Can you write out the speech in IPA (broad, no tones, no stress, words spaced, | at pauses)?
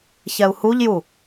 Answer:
çɛu̯huʎju